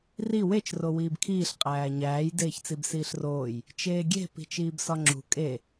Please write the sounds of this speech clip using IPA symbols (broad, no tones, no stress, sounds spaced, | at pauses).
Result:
r i w e t͡ʃ r o w iː b kʰ iː ɬ qʼ æː ɲ æː j d eː ç t͡s i b s iː ɬ r oː j | t͡ʃ eː ɡʲ e̤ p i̤ t͡ʃ iː b s ɒ ŋ͡ǁ ṳ kʼ e